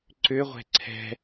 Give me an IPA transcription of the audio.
ǀ ʏ ʁʷ ɛ̤ ǀʰ ɛ̤

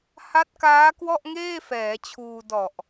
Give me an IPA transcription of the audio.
h a˦˥ t̚ k aː˦˥ k w ɔ˥˩ ʔ ŋ eː˥˩ f ɛː˩˦ t͡ɕʰ uː˧ d ɔ˨˩ ʔ

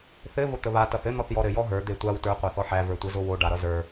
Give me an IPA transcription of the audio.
θ ɘ v o t̪ ə β a t ʌ θ ɘ n̪ ɔ θ j ɔ ɾ ɘ j ɔ ɦ ə˞ d̪ e tʷ a w t ə˞ qʷ a θ ɔ ħ æ v ə˞ tʷ ɘ z o w o ɖ a ɾ ʌ z ə˞

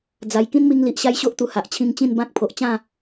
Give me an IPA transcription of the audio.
d͡z a˧ j k ĩ˦ n m i˧ ŋ l i˨ ʔ ɕ a˦ j ɕ o˦ ʔ t̪ u˨˩ h a˨ ʔ t͡ɕʰ ĩ˧ ŋ t͡ɕ ĩ˥˧ n b ã˦ k̚ pʰ o˨ ʔ t͡ɕ ã˥˧

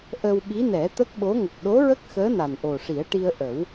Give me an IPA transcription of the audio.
ʔ ə˧ w ɓ i˧˥ n ɛ˨˩˦ t̪ ə˦˥ k̚ ɓ o˧˥ ŋ ə˨˩ k̚ ɗ o˧˥ ɹ ə˦˥ k̚ x əː˧˥ n a˨˩ n ʔ o˨˩ ʂ i˨˩˦ ə̯ ʈ i˧ ə̯ ʔ ə˨˩˦ w

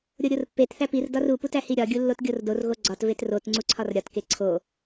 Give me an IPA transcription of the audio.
ɾʲ o ɾʲ o r pː e t θ æ p i r d ɒ r u p u t æ h i ɾʲ ɒ ɡʲ u lː o t ɡʲ o r d o r ɣ o ɡ͡ǀ ɒ t v e t r o t ŋ͡ǀ u ǀʰ ɒ r ɾʲ ɒ t k e ǀʰ o

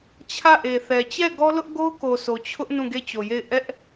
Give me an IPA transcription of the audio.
t͡ɕʰ ä˦˨ ʔ e˨ θ ɛ˨ t͡ɕ ɛ˦˨ ɡ ɔ˦ l ʊ˦ ʔ ɡ o˦ ʊ̯ k o˨ sʰ o˨ t͡ɕʰ ʊ˦ ʔ n ũ˦˨ ɡ e˦˨ t͡ɕ o˨ j e˦˨ ɪ̯ ʔ ɛ˦ ʔ

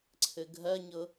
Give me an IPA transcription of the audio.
ǀʰ ɘ ɡʱ ɜ ɲ ɤ

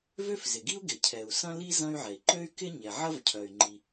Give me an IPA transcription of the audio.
v ø˥ f z ɪ˩ ɡ i˥ u̯ ɡ ɪ˩ cʰ ɛ˩ u̯ s ɐ̃˥ l i˥ z ɐ̃˥ y̯ ʕ ɛ˩ i̯ ǃ ø˥ y̯ k ɪ˥ ɲ ɛ˩ ʕ ɐ˥ v cʰ œ˩ y̯ ŋ͡ǃ i˩

